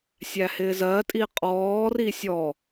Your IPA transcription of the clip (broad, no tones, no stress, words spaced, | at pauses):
sʲæhɪːzɜ tʼiqʼɔːri sʲɔ